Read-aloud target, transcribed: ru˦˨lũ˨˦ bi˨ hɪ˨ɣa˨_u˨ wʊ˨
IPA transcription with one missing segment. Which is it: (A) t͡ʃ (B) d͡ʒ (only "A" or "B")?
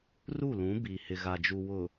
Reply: B